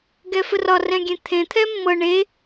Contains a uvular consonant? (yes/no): no